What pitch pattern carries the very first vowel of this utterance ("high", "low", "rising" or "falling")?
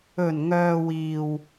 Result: low